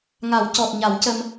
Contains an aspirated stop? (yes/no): no